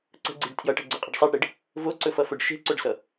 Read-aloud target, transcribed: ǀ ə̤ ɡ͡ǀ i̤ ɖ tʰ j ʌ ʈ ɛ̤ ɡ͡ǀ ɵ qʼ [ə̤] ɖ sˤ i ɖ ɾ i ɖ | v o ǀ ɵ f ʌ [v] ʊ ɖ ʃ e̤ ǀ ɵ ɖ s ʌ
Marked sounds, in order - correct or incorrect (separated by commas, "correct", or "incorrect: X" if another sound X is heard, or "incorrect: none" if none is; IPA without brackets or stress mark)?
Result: correct, incorrect: f